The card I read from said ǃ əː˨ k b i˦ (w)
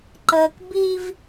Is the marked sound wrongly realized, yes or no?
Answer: yes